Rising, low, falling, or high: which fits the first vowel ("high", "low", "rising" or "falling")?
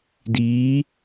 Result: rising